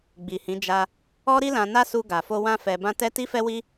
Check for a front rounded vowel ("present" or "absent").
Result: absent